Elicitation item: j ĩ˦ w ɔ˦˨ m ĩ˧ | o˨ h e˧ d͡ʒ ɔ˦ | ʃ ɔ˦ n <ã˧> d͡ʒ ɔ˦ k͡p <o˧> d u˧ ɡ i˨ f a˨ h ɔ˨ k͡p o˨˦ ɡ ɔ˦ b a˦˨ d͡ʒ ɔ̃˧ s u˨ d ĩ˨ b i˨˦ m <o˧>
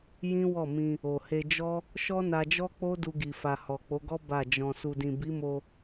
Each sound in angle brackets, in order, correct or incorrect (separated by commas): incorrect, incorrect, correct